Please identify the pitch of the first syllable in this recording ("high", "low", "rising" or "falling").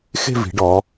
falling